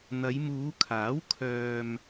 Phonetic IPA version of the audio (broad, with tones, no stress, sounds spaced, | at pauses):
n̪ ɐ˨˧ j m uː˨˧ kʰ aː˨˥ w kʰ œː˧ m